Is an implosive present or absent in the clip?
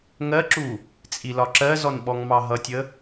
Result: present